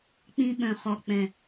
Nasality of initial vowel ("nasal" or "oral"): nasal